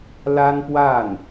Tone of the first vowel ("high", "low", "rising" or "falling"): high